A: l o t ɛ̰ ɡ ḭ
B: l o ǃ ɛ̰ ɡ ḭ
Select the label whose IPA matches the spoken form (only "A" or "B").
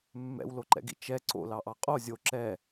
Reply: B